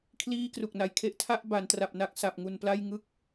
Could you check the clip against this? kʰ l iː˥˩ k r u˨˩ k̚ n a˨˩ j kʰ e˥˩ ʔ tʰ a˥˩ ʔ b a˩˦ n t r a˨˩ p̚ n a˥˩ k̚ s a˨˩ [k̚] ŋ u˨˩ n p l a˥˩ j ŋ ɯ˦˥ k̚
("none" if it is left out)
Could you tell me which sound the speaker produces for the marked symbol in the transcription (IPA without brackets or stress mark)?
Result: p̚